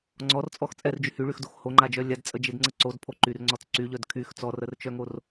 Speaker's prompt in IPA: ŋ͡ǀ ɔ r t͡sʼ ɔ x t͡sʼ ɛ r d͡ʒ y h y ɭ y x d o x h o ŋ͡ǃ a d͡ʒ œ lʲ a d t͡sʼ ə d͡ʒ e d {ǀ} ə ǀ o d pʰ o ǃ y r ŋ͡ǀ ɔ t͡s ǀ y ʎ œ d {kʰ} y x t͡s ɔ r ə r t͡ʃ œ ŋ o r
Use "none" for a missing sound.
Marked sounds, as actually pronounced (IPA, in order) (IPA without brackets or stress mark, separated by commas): ŋ͡ǀ, kʰ